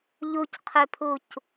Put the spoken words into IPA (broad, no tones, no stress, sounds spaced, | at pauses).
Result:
ʎ u c qʰ ø pʰ u c